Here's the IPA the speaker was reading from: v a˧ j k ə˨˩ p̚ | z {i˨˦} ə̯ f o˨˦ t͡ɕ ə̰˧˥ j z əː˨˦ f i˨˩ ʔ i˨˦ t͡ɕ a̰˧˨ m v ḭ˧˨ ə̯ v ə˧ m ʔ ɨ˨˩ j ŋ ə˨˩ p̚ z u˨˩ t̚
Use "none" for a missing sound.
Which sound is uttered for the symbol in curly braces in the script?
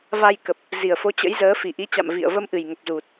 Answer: i˨˩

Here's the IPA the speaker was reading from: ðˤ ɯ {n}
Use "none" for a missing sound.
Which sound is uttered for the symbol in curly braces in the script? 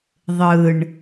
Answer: ɳ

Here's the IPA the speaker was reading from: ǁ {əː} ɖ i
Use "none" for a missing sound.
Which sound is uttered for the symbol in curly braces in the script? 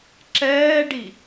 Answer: ɛː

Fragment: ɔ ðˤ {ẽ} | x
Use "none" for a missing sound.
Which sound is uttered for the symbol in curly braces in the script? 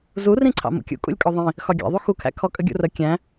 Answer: ĩ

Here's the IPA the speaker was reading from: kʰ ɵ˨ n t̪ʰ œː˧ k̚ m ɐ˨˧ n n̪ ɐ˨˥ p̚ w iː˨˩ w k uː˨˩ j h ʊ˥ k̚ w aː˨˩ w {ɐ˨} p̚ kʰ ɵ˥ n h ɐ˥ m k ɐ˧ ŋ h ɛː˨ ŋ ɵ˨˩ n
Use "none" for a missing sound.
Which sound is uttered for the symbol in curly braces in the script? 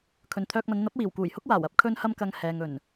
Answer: ɐ˥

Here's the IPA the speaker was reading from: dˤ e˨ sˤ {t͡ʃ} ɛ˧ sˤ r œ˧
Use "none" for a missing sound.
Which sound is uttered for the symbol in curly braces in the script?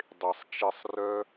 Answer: t͡ʃ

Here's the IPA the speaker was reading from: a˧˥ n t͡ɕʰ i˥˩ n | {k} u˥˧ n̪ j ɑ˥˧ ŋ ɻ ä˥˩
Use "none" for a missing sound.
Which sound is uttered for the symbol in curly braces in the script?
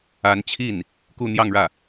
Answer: k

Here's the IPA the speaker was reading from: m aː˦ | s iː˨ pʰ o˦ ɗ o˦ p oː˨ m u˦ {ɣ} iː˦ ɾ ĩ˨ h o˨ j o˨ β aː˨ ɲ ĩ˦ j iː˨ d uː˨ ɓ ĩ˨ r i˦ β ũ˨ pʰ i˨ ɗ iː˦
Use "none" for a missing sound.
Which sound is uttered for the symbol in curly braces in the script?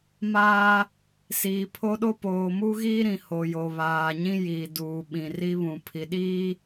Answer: ɣ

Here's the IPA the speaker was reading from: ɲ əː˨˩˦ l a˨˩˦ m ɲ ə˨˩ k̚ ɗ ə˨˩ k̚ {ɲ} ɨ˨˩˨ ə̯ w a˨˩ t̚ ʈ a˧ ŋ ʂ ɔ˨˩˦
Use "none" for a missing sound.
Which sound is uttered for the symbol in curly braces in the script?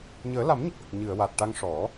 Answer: ɲ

